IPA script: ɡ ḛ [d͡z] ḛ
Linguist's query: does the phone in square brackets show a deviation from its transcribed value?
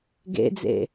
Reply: no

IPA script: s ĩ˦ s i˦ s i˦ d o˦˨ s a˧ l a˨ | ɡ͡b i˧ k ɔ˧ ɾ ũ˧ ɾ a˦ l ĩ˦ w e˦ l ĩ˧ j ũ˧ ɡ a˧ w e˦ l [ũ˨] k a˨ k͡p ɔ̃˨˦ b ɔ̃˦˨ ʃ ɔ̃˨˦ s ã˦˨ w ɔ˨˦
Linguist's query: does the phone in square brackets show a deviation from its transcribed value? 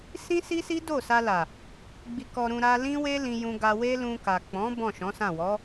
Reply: yes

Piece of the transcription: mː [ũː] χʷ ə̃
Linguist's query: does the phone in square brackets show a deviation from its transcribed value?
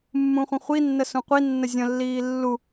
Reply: yes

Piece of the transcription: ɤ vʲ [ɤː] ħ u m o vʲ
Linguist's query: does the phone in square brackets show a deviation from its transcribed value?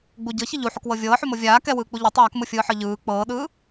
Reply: no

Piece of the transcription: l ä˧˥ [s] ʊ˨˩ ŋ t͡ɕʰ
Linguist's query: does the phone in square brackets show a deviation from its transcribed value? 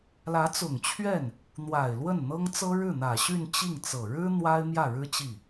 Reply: yes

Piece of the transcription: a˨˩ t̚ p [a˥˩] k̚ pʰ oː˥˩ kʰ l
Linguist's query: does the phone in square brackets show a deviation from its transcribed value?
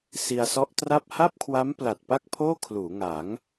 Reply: no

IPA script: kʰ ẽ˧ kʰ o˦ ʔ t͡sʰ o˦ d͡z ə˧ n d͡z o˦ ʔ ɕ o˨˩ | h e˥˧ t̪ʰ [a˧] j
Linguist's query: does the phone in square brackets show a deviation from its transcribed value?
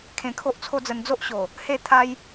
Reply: yes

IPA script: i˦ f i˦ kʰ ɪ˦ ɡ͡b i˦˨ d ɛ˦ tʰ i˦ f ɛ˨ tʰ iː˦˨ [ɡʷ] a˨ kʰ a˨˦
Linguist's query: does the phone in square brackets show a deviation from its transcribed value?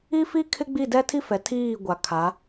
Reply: no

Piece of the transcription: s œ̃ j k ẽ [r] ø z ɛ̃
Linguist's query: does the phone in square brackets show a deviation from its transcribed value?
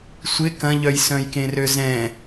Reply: no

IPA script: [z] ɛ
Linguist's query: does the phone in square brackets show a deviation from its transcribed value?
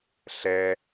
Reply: yes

